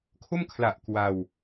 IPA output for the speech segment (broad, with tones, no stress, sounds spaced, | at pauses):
kʰ o˥˩ m kʰ l a˨˩ ʔ k w a˧ w